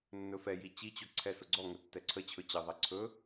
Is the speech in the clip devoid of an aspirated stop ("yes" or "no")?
no